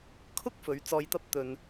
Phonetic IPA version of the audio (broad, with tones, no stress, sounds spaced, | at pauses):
kʰ ʊ˥ k̚ f ɵ˨˧ ɥ t͡s ɔː˧ j t̪ ɐ˥ p̚ t̪ ɵ˧ n